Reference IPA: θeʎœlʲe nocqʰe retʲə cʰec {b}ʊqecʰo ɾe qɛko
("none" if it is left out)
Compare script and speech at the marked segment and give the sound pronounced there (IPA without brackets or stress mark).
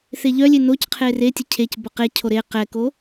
b